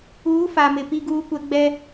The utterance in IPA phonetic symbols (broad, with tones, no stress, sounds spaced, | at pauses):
uː˨˦ f a˨ m ɪ˨ p i˦ ɡ uː˦ kʷ ɛ˦ ɡ͡b ɛ˦